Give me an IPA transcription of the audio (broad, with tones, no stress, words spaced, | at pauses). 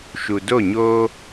ʃu˨do˦˨ɲoː˦